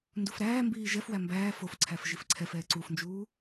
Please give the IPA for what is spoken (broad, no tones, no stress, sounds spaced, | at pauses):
n d u f ɾ æː m b iː ʒ ɛ f w æ m b æː f o f ǀʰ æ f ʒ i f ǀʰ ɛ f ɛː ǀ u f n d͡ʒ uː